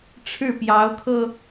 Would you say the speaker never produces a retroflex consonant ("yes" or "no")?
no